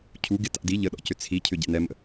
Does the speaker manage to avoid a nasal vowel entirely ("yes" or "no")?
yes